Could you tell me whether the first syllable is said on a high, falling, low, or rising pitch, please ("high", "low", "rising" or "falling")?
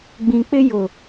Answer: low